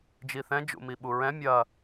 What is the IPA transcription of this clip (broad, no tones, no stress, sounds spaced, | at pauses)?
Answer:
d͡ʒ i θ ɛ̃ d͡ʒ ṵ m i ɓ u ɹ ɛ̃ mʲ ɐ